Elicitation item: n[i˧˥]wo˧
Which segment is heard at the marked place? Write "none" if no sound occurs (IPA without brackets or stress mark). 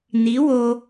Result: i˧˥